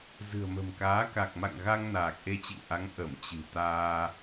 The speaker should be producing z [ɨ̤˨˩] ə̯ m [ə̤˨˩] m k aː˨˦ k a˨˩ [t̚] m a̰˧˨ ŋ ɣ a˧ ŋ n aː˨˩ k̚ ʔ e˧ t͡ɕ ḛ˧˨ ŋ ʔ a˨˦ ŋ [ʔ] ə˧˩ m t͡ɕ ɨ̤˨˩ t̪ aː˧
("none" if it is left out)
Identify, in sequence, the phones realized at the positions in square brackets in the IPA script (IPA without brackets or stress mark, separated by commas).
ɨ̤˨˩, ə̤˨˩, k̚, ʔ